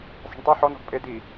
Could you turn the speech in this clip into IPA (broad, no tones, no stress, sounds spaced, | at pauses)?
sˤ e̤ ɳ tˤ i ħ ɔ n ɔ̤ ɡ pʼ e d i